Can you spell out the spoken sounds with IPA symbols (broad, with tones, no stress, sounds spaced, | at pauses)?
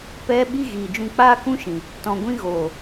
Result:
p ɛ˦ ɓ i˦ ɣ iː˨ d͡ʒ ũ˧ k͡p aː˦ k ũ˦ ʃ ĩ˨ | t ɔ̃˨ ɡʷ ĩ˧ ɣ oː˨